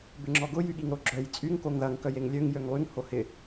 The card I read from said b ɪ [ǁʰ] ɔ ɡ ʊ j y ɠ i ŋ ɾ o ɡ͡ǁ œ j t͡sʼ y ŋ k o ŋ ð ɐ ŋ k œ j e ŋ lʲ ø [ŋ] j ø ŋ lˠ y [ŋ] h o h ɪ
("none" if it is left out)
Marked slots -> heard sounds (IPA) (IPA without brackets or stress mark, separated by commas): ŋ͡ǁ, ŋ, ŋ